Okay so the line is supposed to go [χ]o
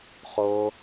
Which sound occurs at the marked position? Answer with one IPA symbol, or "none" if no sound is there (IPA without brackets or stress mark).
χ